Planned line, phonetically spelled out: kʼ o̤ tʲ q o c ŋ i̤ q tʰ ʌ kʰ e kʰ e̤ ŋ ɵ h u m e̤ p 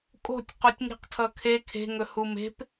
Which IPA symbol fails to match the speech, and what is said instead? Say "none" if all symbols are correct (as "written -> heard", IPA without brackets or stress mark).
c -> tʲ